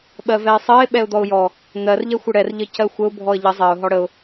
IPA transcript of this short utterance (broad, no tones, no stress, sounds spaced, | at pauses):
ɓ ɜ v ɛ ɪ̯ sˤ ɜ ɪ̯ ɓ ɛ ʊ̯ d̪ ɔ ʊ̯ j ɔ | n̪ ɜ r ʎ ɛ xʷ ə ɽ ɛ r ʎ ə c ɜ xʷ ə ʊ̯ bʱ ɔ ə̯ ʎ ə zˤ ɜ ʊ̯ ɦ ɔ ɽ ə ʊ̯